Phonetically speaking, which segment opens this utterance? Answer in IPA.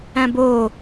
æ̃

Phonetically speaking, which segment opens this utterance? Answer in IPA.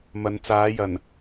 m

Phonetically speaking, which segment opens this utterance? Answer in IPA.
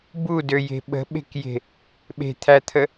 b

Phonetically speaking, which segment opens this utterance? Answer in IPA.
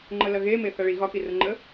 ŋ͡ǃ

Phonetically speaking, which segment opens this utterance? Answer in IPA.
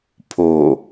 pʰ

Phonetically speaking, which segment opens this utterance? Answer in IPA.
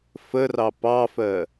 f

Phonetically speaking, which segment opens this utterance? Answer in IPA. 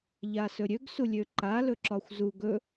ʎ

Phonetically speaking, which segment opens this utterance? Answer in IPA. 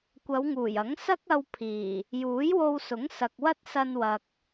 kʷ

